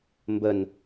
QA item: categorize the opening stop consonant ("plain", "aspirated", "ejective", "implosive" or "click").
plain